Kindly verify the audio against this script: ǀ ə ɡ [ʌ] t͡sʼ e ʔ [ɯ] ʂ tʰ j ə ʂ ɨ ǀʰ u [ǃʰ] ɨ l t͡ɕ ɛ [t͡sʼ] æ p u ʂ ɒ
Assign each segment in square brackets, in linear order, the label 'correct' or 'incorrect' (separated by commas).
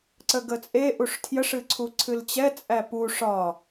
incorrect, incorrect, incorrect, correct